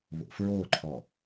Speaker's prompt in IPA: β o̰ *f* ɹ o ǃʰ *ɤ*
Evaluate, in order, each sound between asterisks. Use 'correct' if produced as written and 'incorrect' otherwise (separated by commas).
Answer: correct, incorrect